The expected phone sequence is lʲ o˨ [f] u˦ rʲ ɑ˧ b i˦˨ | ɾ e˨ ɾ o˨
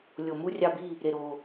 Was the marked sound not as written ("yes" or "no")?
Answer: yes